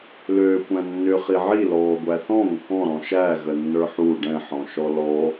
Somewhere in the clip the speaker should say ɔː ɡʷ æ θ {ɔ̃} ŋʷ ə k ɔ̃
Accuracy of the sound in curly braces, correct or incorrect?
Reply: correct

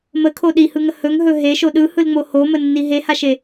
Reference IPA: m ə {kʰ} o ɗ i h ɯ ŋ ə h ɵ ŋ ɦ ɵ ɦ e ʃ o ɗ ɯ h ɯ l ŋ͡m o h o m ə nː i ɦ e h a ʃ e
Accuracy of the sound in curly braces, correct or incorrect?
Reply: correct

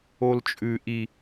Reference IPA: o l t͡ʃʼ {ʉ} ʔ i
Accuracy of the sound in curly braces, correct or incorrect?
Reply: correct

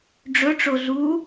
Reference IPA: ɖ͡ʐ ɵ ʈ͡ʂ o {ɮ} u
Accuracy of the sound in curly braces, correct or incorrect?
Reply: correct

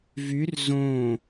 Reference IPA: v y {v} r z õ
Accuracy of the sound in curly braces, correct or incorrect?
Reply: incorrect: none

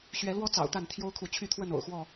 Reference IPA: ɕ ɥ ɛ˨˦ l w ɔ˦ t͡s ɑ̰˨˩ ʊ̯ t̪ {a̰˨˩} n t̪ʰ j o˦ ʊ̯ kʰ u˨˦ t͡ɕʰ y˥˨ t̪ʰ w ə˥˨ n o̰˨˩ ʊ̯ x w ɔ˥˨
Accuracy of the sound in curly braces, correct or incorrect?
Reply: incorrect: a˥˨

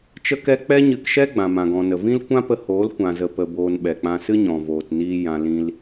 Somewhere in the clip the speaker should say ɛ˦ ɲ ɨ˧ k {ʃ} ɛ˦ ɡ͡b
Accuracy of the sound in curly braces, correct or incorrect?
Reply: correct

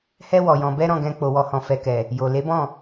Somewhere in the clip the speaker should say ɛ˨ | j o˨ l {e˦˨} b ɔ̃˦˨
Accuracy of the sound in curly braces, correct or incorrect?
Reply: incorrect: e˨˦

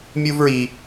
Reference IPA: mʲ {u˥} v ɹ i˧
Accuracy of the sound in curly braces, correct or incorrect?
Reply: correct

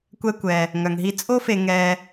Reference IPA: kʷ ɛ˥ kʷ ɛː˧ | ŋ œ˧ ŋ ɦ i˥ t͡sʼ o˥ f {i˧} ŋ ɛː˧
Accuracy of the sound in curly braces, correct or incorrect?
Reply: incorrect: e˧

